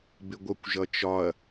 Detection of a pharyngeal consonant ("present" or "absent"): absent